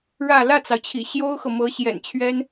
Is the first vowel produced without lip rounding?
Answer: yes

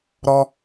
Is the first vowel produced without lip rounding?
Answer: no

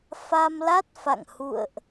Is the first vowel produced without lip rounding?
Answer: yes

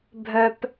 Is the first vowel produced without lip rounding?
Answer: no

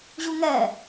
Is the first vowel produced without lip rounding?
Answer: no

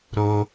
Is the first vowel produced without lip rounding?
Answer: no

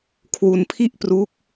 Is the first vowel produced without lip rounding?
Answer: no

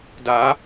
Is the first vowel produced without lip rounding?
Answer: yes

